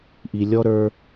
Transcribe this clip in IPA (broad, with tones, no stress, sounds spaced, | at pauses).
ʔ i˨ lʲ ɔ˦ ɾ ə˞˦